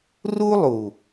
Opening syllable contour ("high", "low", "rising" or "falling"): high